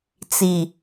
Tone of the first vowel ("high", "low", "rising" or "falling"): low